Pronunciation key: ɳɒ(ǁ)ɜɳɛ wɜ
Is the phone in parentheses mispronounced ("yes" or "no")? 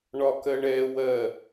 yes